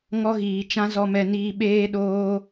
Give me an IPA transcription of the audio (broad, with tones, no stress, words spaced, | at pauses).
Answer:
ŋɔ˧ɣiː˨t͡ʃã˧ zɔ˨mɛ˨niː˨ ɓeː˧ɗoː˧